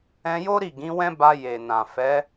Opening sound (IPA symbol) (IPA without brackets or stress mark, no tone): ɛ̃